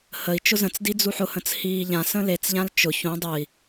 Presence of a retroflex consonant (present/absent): absent